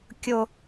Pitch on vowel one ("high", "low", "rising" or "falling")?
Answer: low